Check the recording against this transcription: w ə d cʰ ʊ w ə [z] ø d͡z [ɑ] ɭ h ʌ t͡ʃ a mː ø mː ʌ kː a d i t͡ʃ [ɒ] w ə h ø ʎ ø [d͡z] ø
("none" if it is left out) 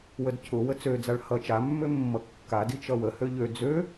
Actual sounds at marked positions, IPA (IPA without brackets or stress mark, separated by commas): t͡s, a, ʌ, d͡z